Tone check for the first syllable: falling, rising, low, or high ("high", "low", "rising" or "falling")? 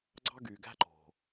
high